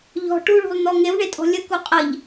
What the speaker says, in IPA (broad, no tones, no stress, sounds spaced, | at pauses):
ʎ ɔ̤ ʈ u ɭ ṳ lˠ n̪ ɔ ŋ e w ɳ e tʼ ɔ̤ lʲ ə k u qʼ ə ʎ